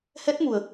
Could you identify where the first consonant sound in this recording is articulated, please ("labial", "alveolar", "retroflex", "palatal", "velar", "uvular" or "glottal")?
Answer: glottal